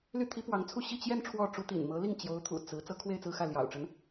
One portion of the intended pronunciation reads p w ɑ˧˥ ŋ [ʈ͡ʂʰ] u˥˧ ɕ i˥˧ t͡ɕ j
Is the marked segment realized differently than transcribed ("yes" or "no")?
yes